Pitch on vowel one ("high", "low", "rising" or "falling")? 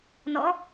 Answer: rising